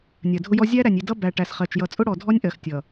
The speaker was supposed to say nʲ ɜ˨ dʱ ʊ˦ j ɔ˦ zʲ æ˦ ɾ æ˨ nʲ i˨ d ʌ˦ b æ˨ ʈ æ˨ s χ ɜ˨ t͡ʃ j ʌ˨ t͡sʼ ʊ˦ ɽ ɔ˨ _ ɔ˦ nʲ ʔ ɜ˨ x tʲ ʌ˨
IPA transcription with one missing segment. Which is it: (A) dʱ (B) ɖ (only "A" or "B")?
A